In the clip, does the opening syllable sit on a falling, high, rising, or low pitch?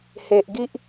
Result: low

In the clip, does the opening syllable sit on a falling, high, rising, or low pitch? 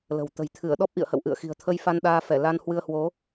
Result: low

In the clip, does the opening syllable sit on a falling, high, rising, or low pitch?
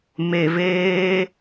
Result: low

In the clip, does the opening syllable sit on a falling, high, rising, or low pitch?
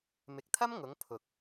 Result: low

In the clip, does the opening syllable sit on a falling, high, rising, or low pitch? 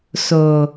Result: low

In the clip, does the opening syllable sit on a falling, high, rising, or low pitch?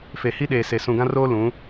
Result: low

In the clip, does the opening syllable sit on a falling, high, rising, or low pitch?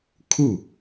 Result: falling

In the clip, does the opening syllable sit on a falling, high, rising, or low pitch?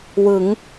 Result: rising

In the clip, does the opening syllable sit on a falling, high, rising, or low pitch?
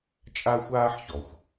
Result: high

